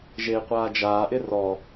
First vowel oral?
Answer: yes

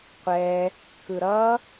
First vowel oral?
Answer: yes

